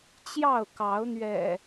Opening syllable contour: falling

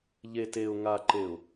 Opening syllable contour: low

